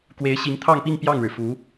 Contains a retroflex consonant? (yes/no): yes